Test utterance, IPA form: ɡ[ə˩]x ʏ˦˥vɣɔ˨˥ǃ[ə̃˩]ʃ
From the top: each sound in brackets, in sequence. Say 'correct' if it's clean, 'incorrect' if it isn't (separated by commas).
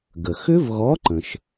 correct, correct